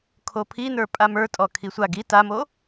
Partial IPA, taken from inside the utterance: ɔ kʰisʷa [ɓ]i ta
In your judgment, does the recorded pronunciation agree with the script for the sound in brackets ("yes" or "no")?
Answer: no